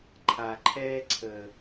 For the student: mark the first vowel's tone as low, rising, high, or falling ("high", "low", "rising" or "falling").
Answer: low